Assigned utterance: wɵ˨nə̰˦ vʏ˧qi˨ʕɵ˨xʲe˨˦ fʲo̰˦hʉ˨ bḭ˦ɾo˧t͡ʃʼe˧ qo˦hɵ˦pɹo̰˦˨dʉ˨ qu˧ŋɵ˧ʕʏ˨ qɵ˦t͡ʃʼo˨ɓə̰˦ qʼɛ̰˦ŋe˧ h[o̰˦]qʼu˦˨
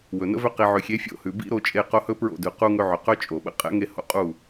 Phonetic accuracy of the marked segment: correct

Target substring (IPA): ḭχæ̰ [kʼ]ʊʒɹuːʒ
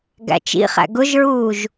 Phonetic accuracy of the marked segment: incorrect: ɡ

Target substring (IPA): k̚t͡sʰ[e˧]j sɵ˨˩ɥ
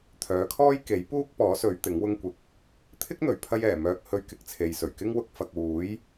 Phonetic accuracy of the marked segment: incorrect: e˨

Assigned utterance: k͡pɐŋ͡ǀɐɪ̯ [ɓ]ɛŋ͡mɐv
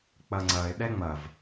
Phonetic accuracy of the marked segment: incorrect: ɗ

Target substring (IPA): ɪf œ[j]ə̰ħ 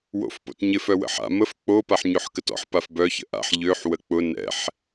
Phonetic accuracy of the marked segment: incorrect: w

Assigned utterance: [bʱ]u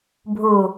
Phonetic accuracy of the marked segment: correct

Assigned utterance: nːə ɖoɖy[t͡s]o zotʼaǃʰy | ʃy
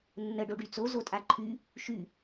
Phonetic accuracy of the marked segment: correct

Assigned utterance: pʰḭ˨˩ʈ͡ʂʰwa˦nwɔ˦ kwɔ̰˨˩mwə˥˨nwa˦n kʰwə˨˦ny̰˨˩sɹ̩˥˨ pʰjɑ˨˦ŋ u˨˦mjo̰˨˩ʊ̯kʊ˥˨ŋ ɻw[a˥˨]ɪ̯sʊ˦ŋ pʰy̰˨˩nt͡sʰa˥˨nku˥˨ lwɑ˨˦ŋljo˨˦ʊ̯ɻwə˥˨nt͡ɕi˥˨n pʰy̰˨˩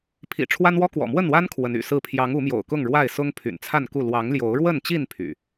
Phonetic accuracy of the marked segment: correct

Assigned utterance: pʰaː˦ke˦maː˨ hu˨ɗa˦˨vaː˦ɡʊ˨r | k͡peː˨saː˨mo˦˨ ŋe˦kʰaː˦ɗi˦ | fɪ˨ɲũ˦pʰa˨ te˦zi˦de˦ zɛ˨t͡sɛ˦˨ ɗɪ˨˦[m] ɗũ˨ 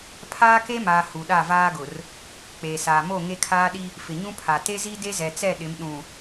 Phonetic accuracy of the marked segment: correct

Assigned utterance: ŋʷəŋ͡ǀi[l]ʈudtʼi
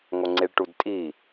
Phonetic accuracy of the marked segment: incorrect: ɭ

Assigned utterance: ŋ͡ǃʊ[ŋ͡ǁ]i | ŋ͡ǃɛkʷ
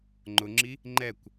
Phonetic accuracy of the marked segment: correct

